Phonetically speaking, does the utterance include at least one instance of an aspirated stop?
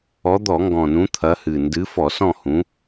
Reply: yes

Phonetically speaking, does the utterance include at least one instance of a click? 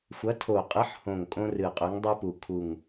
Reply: no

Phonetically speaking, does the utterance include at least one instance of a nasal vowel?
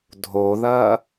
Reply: no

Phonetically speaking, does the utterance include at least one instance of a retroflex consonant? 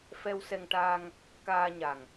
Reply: yes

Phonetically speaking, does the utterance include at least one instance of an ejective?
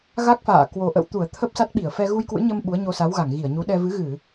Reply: no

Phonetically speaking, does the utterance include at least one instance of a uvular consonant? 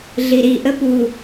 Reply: no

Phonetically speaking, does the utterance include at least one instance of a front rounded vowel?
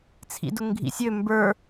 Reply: yes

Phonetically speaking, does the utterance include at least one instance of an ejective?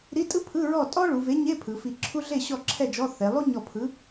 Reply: yes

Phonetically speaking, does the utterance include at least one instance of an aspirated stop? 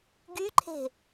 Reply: yes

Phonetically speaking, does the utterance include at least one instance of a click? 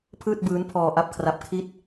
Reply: no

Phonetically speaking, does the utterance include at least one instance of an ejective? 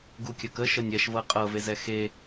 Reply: yes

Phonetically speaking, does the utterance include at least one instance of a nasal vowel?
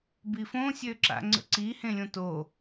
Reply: yes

